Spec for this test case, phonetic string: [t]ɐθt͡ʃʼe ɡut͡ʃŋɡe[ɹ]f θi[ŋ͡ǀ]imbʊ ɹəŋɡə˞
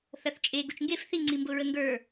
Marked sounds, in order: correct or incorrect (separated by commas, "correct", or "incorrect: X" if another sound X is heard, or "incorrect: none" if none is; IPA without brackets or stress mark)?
incorrect: θ, incorrect: none, correct